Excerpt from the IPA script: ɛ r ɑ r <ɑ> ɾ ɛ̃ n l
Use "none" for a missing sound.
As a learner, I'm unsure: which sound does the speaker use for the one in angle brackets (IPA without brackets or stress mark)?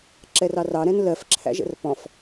ɑ